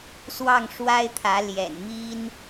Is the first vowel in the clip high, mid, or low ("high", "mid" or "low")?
low